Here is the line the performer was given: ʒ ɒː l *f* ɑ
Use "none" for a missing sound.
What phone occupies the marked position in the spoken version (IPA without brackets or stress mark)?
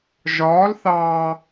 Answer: θ